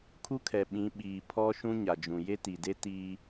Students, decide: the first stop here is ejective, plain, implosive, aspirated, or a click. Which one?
aspirated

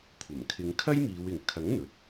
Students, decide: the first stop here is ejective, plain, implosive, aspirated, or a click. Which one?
aspirated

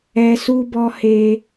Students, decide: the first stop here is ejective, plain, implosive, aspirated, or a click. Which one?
plain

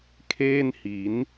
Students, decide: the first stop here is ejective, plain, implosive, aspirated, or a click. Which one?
aspirated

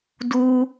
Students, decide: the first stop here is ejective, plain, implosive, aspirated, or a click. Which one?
plain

